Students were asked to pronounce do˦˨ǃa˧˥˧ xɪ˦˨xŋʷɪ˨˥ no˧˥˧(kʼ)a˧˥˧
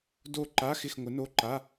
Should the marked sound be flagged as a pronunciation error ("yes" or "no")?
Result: yes